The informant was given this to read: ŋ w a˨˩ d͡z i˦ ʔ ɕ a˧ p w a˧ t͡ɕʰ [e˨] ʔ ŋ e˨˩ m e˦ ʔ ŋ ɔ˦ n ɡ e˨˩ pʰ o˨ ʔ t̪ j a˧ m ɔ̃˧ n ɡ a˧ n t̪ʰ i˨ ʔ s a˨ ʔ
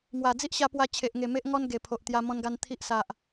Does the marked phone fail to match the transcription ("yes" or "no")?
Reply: no